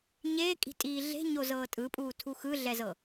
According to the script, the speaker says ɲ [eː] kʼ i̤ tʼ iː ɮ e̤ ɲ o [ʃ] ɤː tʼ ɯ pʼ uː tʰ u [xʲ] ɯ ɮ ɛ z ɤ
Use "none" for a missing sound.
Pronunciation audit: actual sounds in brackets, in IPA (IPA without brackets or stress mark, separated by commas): eː, z, x